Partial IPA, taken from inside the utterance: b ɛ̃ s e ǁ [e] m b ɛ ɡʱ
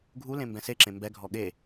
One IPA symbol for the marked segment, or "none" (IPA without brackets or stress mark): ẽ